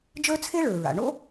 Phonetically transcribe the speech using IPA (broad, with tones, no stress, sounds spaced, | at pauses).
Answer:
d͡ʒ ə˞˥ t͡sʰ e˥ ɭ ə˞˩ ɹ a̰˩ ɳ o̰˥